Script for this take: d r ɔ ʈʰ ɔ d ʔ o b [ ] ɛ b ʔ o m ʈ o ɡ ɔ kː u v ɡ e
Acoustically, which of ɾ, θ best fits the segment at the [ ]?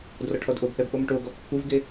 θ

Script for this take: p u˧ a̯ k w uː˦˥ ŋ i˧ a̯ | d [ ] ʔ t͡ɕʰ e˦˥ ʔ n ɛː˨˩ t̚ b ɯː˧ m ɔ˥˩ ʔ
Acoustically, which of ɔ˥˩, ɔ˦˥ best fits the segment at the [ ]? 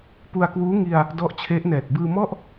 ɔ˦˥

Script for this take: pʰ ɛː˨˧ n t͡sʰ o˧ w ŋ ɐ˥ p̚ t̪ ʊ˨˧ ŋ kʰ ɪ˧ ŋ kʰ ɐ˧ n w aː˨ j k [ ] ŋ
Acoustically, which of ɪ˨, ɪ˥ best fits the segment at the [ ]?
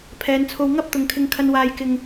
ɪ˨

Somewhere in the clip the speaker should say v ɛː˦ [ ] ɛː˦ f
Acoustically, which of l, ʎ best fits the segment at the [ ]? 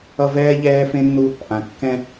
ʎ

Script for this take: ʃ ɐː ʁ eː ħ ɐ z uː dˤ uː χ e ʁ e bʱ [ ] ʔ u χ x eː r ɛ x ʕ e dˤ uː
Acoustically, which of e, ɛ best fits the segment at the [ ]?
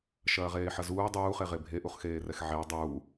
e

